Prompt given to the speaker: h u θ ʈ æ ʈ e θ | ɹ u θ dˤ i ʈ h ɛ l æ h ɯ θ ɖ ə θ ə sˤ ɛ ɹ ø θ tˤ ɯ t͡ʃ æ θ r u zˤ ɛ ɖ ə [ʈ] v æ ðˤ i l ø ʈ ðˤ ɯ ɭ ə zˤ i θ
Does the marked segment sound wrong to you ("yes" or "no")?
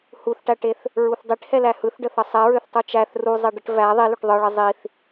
no